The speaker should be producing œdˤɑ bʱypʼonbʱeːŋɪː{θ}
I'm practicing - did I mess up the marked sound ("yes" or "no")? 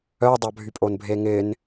yes